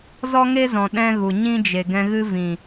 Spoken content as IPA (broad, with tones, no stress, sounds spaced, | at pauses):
z ɔ˦ ŋ e˦ z ɔ̃˨ ɗ ɛ̃˦ ɣ u˨ ɲ ĩ˦ d͡ʒ e˨ ɡ ɛ̃˧ ɣ ɨ˦ v ĩ˨